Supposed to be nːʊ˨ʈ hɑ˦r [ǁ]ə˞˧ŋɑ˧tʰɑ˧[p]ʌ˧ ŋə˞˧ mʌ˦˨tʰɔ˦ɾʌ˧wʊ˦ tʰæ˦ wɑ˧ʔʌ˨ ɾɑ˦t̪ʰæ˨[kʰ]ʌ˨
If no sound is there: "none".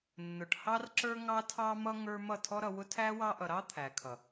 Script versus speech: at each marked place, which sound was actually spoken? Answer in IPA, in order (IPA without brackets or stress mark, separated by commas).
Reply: ǁ, m, kʰ